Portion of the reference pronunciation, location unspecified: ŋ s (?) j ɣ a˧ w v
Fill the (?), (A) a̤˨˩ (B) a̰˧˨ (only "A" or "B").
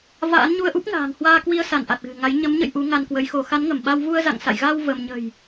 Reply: B